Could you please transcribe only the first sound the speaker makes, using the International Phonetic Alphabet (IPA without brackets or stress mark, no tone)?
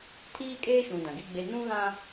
tʰ